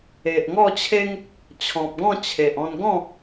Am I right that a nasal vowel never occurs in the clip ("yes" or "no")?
no